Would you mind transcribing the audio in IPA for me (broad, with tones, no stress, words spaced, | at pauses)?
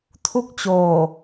tʰu˥˩k̚t͡ɕoː˨˩